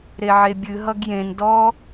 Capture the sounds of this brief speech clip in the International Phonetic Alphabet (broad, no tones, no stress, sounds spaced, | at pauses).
ɾ e ʕ e bʲ ɨ ɦ ʌ ɡ j ẽ n d ɔ